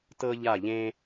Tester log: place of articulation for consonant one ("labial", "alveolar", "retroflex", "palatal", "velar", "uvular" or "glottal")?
alveolar